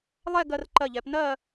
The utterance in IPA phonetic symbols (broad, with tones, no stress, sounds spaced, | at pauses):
lˠ ɛ˥˧ ɡ ɜ˧ r ǃ ɜ˧˩ ʎ ɛ˩˧ p n ɜ˥˧